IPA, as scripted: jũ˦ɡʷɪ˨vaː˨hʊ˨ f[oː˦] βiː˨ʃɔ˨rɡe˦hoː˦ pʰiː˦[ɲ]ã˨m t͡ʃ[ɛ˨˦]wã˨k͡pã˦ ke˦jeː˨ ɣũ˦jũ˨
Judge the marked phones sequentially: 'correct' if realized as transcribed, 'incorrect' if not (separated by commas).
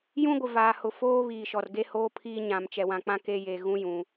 correct, correct, incorrect